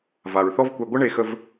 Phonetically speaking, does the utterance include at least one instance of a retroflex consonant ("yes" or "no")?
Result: yes